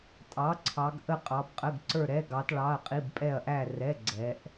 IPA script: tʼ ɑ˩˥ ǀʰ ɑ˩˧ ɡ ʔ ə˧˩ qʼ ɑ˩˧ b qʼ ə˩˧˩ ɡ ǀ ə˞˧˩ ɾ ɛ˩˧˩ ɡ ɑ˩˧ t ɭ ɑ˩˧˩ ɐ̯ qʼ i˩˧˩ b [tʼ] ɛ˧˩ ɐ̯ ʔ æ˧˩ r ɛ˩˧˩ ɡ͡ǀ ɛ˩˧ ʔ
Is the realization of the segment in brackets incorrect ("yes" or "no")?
yes